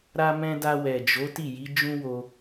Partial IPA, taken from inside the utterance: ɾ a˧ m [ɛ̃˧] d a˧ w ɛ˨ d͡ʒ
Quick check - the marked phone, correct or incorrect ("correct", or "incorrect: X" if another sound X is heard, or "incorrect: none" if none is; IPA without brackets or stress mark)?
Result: correct